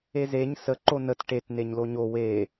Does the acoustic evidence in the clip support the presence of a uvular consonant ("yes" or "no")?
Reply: no